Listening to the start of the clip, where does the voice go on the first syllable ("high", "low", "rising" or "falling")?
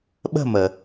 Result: falling